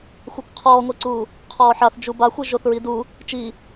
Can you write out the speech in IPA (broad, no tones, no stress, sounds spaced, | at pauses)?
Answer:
xʷ ɤ kʷ qʰ ɔː ŋʷ ɛ ǀ uː | qʰ ɔː ħ a θ d͡ʒ u b a xʷ ɯ ʒ o θ ɹ i d u | t͡ʃ i